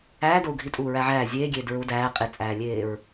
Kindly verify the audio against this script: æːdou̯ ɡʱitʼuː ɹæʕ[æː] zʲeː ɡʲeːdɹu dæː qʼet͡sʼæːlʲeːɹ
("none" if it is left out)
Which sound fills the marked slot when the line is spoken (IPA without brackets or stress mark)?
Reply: æː